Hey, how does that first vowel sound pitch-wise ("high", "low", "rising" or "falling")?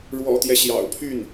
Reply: low